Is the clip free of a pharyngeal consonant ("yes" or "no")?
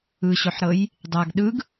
no